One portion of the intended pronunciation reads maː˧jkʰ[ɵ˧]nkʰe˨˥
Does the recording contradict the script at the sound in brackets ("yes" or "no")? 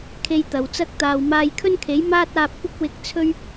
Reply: yes